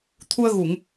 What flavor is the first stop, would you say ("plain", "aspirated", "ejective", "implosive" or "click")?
aspirated